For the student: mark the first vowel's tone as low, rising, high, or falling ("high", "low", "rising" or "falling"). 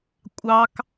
high